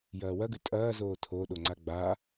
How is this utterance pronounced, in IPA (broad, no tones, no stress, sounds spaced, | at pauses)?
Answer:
j ɐː w ɐ ɡ ʉ tʼ ɐː z oː tʰ o ɗ o ŋ͡ǀ a ɡ͡b a